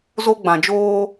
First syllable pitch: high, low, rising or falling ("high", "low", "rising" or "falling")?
high